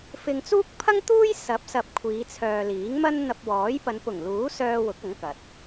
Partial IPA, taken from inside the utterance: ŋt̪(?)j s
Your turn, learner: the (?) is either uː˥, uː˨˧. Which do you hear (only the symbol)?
uː˥